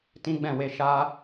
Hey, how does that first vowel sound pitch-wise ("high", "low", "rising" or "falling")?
high